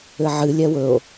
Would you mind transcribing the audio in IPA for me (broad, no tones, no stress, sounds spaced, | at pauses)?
ɘ ʕ ɨ lʲ ɛ w ɵ o̯